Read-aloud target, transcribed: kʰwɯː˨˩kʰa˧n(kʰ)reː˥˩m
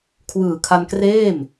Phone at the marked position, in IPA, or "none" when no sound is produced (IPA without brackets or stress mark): k